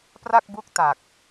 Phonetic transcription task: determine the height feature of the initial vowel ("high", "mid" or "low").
low